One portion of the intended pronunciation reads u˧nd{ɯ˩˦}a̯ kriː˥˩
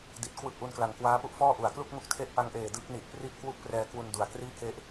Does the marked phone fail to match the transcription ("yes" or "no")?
yes